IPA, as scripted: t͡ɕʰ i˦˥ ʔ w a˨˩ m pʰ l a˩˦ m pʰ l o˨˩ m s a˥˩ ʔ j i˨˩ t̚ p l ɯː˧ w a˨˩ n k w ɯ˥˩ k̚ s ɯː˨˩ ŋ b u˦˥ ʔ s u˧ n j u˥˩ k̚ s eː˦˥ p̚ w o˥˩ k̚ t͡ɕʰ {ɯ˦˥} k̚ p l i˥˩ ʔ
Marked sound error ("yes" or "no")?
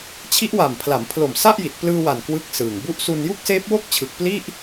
yes